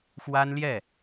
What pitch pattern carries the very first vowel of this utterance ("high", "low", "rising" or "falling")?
high